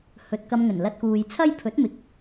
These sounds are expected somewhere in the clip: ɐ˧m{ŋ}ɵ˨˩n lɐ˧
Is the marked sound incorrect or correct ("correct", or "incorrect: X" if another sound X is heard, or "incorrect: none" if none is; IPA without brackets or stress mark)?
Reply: correct